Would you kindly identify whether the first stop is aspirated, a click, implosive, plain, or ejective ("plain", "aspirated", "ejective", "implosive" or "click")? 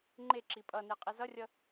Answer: click